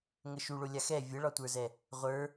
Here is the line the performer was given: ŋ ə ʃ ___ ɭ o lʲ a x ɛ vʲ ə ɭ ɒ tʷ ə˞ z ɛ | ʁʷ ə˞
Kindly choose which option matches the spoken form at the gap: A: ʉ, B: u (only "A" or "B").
B